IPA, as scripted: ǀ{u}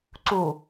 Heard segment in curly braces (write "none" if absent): u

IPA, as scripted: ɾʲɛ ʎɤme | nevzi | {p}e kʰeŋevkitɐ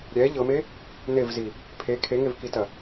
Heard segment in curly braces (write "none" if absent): pʰ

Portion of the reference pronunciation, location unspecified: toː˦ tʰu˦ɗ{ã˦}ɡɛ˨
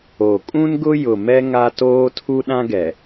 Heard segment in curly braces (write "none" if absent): ã˦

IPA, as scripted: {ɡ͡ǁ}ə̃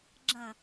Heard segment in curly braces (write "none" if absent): ɡ͡ǁ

